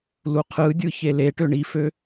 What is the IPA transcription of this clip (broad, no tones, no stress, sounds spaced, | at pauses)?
l u qʰ ɯ dʲ ɯ ç e l e ʈ ø ɳ i f ø